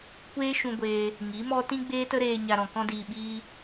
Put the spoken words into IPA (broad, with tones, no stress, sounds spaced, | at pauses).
kʷ eː˦ ʃ ũ˧ ɡʷ eː˧ | ŋ i˨˦ m ɔ˦ t ĩ˦ ɡ͡b eː˦ t ə˦ ɾ eː˧ ɲ a˧ ɾ ɔ̃˨ k ɔ̃˦ d iː˧ ɓ iː˦